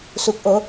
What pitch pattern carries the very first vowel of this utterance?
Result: rising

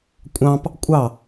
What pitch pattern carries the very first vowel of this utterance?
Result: high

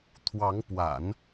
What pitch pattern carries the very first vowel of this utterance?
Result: rising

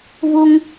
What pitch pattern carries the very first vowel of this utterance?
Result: high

